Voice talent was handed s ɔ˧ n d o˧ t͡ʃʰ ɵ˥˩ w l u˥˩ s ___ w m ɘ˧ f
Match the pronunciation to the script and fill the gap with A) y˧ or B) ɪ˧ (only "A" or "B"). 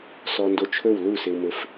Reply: B